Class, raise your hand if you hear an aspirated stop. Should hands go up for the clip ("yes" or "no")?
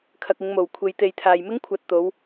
yes